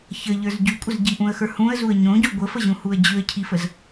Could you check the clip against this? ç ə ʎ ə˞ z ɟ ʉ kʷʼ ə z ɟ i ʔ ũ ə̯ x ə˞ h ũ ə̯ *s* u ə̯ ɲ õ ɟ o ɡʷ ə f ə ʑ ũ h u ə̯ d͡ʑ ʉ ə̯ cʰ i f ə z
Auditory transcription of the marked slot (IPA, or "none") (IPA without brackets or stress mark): z